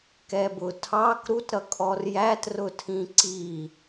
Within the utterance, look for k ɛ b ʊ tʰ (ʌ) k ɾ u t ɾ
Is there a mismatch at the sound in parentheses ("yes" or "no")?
yes